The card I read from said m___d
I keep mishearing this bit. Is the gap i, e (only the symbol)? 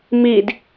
i